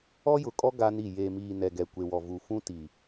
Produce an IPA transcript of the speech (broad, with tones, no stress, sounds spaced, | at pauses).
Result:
ɔ˦ j ʊ˨ kʼ ɔ˦ ɡ a˦ n i˦˨ j e˨ m iː˨ n ɛ˨ ɡ ɛ˨ kʷ e˨ w ɔ˨ v u˨ f ũ˦ t i˨